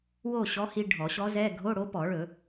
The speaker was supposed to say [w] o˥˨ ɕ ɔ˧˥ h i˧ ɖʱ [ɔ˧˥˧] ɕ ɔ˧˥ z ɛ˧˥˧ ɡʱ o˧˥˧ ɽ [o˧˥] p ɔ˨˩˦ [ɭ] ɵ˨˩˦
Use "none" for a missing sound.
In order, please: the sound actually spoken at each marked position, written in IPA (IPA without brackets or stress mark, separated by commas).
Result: w, ɔ˨˩˦, o˧˥, ɭ